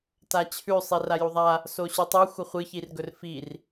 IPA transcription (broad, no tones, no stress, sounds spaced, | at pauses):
t a t͡ɕʰ ʉ sˤ i r a j u ðˤ a | s o ɕ ʉ tˤ u xʷ ɐ χʷ ɨ ç i r ɡ ɵ r f i r